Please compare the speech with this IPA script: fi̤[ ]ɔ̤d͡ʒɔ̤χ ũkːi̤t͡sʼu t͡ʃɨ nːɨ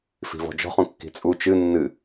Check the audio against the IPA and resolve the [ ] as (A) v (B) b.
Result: A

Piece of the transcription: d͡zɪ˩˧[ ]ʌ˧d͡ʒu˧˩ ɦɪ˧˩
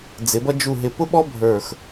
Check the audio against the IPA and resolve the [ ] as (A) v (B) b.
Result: B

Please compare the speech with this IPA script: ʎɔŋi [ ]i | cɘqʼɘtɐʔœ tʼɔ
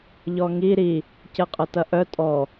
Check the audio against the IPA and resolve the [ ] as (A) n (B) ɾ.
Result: B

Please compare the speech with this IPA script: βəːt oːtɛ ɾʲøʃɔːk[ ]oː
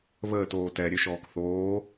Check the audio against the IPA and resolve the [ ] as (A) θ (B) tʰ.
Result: A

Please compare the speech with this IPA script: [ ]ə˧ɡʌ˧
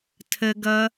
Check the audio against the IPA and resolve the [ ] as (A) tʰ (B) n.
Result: A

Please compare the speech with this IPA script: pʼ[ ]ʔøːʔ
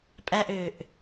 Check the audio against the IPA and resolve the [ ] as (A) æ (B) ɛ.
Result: A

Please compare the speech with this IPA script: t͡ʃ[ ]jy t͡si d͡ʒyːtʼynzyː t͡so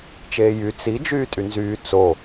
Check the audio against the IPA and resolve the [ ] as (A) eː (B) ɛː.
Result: A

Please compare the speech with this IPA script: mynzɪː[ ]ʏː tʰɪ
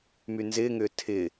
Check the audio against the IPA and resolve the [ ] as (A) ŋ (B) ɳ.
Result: A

